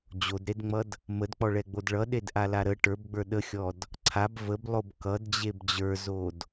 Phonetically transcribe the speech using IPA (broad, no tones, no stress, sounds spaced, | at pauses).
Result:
d͡ʑ o d ɾ e d ŋ͡m ʌ d | m ə d k͡p ɔ ɭ ɛ ɡ͡b o d ɭ ʌ ɗ e d ʔ a l a ɾ ə ʈ ə˞ b ɡ͡b ə˞ ɗ ə xʲ ɔ d | ǀʰ a b v ə b lˠ o b k ʌ d d͡ʑ e b d͡ʑ ə˞ z o d